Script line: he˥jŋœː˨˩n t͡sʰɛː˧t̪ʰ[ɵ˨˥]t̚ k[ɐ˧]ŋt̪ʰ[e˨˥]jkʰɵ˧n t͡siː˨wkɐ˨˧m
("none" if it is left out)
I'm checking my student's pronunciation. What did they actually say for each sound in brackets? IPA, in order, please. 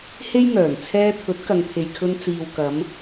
ɵ˨˥, ɐ˨, e˨

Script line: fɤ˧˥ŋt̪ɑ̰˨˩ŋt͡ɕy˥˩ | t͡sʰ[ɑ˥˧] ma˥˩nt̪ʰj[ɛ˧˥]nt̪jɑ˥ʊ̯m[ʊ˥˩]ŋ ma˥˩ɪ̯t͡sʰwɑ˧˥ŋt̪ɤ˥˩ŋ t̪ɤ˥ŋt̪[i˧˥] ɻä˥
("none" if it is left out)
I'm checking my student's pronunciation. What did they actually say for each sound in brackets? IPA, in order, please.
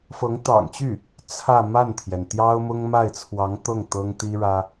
ä˥˧, ɛ˩, ʊ˥, i˥

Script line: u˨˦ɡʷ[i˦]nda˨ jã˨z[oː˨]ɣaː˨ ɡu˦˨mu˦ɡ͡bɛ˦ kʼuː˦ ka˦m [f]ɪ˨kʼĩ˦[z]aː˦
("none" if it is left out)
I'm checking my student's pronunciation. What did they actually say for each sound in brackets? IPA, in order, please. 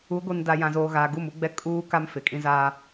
i˨, oː˨, f, z

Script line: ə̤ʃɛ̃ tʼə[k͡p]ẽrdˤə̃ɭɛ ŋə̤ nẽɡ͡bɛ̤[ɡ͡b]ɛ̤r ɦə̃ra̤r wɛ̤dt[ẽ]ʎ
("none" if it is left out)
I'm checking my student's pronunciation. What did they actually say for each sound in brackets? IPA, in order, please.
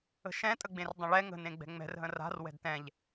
ɡ͡b, ŋ͡m, ɛ̃

